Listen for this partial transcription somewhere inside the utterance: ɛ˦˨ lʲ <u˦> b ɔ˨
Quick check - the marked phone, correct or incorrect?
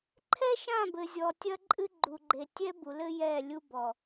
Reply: correct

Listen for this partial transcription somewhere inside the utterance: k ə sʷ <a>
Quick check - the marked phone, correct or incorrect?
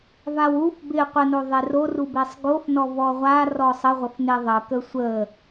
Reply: incorrect: ə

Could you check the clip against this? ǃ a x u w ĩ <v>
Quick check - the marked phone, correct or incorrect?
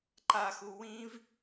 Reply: correct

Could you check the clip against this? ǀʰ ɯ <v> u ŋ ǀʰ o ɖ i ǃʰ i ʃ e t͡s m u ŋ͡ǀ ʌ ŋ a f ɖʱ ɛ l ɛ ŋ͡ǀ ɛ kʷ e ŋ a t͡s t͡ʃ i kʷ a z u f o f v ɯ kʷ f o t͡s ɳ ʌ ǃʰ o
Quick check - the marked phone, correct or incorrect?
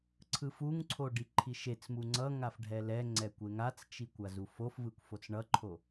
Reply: incorrect: f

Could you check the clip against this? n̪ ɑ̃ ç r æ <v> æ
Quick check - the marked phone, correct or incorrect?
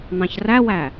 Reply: incorrect: w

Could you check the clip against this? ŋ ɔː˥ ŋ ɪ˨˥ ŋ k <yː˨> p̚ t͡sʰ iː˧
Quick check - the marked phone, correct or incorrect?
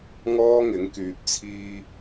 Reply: correct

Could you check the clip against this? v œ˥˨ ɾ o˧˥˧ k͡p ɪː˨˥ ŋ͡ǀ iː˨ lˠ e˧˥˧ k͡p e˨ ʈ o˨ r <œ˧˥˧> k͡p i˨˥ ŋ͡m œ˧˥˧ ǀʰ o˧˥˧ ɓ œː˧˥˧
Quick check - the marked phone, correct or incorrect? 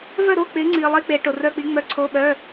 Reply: correct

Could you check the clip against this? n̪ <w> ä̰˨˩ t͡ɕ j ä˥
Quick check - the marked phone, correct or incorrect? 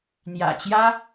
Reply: incorrect: j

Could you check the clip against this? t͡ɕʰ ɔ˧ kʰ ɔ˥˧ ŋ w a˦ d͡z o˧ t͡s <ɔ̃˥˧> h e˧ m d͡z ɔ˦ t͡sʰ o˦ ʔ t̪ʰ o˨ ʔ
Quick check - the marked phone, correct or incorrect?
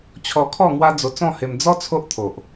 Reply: correct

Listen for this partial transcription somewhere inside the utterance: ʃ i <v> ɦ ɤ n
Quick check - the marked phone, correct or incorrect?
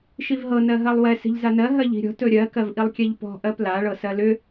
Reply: correct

